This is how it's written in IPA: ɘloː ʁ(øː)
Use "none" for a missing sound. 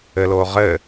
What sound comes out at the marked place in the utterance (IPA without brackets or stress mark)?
ɘː